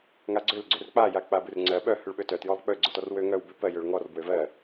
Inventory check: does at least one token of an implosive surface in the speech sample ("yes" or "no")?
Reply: yes